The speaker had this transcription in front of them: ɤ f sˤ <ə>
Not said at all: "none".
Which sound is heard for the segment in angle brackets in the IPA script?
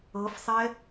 ɛ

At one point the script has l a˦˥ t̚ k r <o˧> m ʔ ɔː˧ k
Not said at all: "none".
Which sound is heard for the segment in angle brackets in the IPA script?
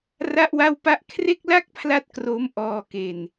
o˦˥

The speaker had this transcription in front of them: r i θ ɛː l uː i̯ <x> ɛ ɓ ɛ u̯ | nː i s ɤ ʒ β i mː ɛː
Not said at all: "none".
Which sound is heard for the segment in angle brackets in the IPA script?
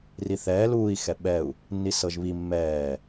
x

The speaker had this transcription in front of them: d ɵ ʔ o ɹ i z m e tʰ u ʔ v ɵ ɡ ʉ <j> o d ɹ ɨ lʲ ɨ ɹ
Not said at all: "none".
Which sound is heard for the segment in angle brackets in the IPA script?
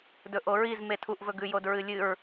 j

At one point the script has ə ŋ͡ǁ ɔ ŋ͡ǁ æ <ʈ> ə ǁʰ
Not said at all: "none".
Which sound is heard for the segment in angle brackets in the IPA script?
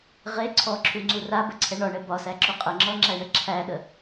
ɳ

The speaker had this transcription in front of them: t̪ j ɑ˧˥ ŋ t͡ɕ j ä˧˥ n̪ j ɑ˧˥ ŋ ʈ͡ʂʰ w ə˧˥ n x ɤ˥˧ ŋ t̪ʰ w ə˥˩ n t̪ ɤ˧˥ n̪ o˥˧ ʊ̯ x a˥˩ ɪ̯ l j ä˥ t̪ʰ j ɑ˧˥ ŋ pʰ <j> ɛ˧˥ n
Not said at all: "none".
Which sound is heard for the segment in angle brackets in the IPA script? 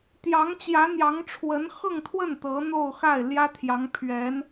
ɥ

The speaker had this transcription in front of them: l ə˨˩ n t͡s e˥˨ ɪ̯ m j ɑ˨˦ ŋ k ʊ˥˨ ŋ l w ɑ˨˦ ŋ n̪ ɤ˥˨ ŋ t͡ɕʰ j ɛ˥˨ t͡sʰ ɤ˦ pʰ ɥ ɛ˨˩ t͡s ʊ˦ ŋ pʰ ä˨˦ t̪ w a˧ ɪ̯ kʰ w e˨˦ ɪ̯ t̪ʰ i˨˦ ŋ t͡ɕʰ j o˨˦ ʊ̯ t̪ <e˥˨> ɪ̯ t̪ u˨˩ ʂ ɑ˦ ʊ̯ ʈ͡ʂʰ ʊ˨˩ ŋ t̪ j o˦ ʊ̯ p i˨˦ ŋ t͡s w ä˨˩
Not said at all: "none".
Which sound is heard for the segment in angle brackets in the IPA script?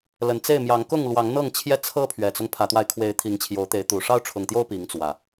e˨˦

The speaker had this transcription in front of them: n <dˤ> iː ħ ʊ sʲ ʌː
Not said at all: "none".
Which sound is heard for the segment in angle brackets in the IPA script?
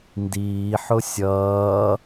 d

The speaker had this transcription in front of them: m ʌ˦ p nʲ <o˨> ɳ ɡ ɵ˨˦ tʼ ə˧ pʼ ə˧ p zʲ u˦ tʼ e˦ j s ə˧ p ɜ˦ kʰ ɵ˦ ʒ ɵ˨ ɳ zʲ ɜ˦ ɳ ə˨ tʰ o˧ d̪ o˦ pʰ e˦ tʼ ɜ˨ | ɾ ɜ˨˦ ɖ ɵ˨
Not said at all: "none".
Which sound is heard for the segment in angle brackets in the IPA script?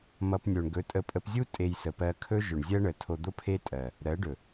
o˧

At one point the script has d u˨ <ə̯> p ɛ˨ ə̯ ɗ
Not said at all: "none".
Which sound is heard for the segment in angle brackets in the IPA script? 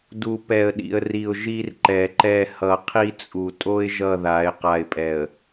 none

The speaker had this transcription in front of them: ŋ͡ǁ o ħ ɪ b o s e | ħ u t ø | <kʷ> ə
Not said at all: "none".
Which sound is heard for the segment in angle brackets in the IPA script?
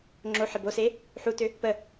p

